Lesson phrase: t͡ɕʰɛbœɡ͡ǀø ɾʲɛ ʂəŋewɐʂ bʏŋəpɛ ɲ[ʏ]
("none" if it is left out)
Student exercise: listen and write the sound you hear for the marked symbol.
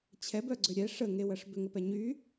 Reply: y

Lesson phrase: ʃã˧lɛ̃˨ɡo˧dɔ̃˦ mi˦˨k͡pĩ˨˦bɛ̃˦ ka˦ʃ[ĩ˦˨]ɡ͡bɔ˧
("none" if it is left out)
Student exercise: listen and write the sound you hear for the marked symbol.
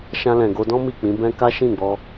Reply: ĩ˦˨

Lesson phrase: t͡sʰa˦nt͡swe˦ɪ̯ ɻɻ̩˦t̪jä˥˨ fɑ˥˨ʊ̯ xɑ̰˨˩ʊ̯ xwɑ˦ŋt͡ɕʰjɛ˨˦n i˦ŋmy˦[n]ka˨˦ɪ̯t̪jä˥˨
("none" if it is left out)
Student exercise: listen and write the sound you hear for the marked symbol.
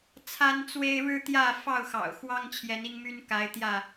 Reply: n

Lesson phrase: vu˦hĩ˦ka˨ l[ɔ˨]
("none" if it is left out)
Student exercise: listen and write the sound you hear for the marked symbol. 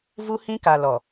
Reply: ɔ˨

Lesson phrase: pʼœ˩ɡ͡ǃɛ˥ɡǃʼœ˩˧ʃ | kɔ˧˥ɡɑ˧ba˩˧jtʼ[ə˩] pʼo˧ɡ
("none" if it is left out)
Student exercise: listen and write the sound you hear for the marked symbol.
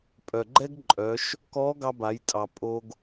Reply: ɑ˩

